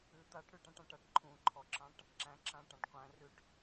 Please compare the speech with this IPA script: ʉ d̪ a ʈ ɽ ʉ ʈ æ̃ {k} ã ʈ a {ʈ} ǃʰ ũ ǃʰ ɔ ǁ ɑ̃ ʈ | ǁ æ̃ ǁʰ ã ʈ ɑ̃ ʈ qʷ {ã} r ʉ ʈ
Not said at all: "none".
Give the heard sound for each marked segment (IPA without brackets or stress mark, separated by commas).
ʈ, ʈ, æ̃